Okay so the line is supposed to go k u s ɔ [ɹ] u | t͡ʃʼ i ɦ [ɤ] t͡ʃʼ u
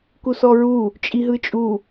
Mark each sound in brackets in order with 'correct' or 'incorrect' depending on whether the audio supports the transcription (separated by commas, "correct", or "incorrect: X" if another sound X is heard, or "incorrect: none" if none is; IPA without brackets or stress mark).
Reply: correct, incorrect: ɯ